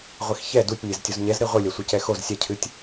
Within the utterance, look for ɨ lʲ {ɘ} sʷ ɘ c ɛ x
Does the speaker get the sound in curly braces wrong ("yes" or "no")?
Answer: yes